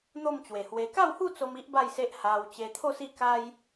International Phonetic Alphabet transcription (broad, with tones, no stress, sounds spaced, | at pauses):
n̪ o˥˧ m t͡ɕ w e˨˩ h w e˧ k a˥˧ w h u˥˧ t͡s o˧ m i˦ ʔ b a˥˧ j s e˦ ʔ h a˧ w t͡ɕ e˧ t̪ʰ o˥˧ s i˥˧ k a˦ j